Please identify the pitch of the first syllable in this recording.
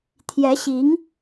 rising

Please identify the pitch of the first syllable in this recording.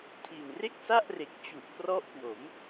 low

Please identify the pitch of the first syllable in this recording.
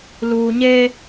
low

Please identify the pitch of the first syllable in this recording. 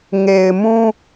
low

